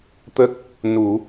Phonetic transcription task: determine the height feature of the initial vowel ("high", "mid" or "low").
mid